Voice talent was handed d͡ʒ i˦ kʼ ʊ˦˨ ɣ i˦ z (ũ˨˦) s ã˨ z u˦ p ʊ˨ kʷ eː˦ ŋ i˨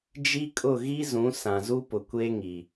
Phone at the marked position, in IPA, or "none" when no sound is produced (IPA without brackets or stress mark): ũ˨˦